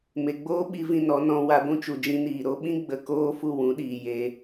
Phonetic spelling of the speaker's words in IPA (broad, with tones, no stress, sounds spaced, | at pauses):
m e˨ ɡ͡b oː˦ ɓ i˧ v ĩ˧ n ɔ˨˦ n ɔ̃˧ w a˧ ɡʷ ũ˦ t͡ʃ u˨ d͡ʒ ĩ˧ n iː˨ ɾ o˧ ɓ ĩ˦ ɡ͡b ə˧ k oː˦ f u˦˨ w ũ˨˦ ɗ iː˨ j e˧